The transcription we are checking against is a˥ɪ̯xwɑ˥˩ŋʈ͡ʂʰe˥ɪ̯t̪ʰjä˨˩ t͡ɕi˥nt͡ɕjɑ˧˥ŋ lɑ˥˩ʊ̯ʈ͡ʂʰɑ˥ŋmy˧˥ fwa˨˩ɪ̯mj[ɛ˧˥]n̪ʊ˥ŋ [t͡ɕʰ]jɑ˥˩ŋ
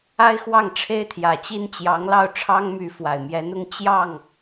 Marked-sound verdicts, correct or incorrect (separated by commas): correct, incorrect